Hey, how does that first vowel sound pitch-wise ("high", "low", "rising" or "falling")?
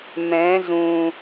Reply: rising